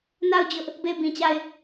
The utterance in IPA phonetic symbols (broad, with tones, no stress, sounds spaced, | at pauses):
n a˦˨ ʊ̯ d͡ʑ ʊ˦ ʔ | b e˦˨ ɪ̯ b ĩ˨ t͡ɕ a˦˨ ɪ̯